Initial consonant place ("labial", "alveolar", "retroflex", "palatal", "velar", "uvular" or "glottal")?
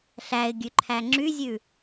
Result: alveolar